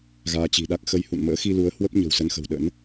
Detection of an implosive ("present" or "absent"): present